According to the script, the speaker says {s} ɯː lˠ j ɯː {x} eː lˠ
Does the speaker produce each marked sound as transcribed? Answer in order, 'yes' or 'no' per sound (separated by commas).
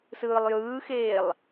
yes, yes